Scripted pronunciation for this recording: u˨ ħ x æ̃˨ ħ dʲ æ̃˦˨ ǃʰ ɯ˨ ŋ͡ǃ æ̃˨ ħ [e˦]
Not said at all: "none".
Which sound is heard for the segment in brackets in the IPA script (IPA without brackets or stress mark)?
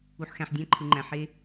e˦